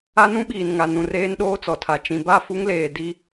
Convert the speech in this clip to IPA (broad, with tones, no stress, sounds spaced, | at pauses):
a˦ n ũ˦ ɓ iː˨ n ŋ a˨ n ũ˨ r eː˦ n ɗ oː˦ t͡s ɔ˨ tʰ a˨ t͡ʃ ĩ˨ b a˦˨ f u˦ ŋ l eː˨ d i˦